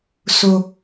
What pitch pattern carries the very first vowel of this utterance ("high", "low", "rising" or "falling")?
high